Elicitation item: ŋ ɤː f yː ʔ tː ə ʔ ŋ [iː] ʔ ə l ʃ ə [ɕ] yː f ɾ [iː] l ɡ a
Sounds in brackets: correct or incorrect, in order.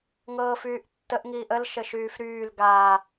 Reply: correct, incorrect: ʃ, incorrect: yː

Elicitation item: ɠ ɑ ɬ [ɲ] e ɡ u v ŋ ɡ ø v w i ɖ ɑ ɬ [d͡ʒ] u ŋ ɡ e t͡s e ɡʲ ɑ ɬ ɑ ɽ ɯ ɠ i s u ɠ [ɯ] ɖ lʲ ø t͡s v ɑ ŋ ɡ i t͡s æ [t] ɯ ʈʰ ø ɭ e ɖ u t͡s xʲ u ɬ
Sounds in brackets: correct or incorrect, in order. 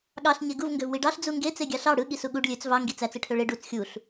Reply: correct, incorrect: d͡z, incorrect: u, incorrect: t͡s

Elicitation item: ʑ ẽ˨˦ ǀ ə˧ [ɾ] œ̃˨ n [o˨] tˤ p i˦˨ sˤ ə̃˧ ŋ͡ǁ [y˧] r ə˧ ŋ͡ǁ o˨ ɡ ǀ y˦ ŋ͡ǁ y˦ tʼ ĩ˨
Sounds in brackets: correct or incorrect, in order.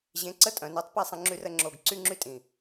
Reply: incorrect: tʼ, incorrect: o˨˦, correct

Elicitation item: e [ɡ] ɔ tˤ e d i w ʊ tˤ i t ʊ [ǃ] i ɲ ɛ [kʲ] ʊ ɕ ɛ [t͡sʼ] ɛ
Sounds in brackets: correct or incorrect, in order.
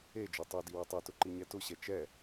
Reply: incorrect: d͡ʒ, correct, incorrect: t, incorrect: t͡ʃ

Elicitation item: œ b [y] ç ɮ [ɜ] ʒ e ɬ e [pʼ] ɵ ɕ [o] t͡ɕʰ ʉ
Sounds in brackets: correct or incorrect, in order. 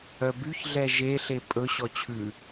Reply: correct, incorrect: ɛ, correct, incorrect: ɔ

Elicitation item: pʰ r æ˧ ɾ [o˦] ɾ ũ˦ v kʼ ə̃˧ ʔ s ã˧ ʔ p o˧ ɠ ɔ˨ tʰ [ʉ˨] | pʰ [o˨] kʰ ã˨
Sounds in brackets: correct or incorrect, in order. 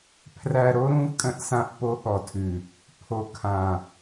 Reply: correct, correct, correct

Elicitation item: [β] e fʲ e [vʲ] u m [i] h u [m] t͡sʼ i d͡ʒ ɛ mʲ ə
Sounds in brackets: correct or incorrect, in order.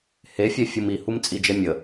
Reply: incorrect: h, incorrect: fʲ, correct, correct

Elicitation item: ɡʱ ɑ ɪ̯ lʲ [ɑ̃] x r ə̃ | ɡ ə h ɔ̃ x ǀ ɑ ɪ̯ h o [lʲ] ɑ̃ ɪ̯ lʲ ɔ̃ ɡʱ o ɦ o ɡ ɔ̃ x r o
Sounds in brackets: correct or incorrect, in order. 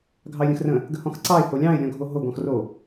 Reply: incorrect: ə̃, correct

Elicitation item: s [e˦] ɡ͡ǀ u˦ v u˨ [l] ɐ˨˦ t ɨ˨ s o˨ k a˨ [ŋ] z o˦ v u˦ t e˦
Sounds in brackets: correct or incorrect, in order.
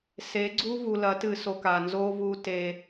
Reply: incorrect: e˨˦, correct, incorrect: n

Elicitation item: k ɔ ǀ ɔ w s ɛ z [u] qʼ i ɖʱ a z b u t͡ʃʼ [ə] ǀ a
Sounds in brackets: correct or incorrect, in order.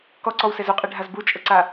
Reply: correct, correct

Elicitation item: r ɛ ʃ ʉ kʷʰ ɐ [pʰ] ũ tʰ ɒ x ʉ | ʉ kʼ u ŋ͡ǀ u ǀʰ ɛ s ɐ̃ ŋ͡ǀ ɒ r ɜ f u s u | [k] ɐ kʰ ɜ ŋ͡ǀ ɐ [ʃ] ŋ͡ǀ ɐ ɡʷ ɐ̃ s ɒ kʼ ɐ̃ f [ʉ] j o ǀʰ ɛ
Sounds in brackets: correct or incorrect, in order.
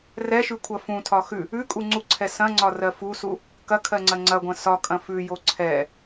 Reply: incorrect: f, correct, incorrect: none, correct

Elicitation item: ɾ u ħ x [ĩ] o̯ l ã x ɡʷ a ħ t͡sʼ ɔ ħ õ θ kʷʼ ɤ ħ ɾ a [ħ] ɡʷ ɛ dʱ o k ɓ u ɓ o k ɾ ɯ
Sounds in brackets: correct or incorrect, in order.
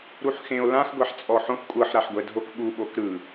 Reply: incorrect: ẽ, correct

